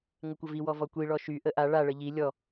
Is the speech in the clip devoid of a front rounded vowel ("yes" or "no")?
no